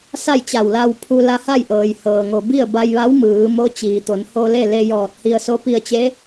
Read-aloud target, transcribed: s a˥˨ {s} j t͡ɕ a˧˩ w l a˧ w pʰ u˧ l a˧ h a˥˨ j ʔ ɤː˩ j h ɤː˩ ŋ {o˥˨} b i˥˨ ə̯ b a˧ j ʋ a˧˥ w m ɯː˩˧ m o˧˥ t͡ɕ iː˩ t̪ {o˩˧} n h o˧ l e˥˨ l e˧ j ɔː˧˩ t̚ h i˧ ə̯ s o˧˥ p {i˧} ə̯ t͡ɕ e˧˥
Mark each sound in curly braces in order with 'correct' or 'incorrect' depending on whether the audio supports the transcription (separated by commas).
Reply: incorrect, incorrect, correct, correct